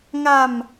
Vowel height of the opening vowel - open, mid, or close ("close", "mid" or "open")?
open